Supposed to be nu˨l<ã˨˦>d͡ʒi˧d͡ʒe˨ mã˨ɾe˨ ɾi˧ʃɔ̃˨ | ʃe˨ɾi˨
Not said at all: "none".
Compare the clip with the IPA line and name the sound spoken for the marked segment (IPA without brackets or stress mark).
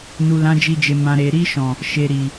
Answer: ã˨˦